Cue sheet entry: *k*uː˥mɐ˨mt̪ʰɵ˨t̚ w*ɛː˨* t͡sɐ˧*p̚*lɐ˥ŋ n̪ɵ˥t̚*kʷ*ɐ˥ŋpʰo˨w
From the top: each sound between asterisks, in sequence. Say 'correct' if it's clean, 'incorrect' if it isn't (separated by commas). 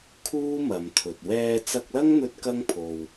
incorrect, incorrect, incorrect, incorrect